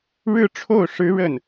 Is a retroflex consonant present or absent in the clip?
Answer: present